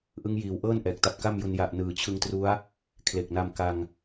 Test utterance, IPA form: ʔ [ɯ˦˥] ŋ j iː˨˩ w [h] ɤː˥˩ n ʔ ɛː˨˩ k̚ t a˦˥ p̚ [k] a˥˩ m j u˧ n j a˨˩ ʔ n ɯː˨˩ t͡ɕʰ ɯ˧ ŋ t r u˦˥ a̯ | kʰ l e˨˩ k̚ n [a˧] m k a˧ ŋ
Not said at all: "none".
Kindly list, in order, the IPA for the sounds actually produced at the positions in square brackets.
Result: ɯ˦˥, ʔ, k, a˧

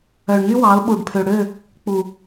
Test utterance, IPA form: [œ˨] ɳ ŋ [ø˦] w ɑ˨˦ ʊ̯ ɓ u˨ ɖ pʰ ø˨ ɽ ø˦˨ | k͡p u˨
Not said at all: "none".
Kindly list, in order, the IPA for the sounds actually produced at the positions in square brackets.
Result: œ˨, y˦

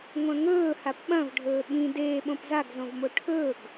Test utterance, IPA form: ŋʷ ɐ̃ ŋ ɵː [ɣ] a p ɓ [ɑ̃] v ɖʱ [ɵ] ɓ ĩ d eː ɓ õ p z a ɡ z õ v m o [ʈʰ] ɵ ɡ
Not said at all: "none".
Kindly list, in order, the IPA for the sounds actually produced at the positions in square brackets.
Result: h, ɐ̃, ɵː, ʈʰ

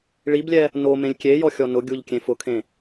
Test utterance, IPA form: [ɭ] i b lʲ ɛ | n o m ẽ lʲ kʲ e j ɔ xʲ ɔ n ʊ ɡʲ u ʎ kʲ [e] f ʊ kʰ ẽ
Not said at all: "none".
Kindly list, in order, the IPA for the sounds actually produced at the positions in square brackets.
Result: ɭ, ẽ

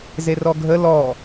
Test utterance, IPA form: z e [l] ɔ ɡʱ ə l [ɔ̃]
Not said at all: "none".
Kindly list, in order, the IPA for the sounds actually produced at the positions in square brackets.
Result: r, ɔ

